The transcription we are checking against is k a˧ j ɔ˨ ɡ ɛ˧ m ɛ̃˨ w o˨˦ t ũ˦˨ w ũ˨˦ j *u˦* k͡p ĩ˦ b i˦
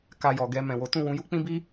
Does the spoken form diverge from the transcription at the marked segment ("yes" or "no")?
no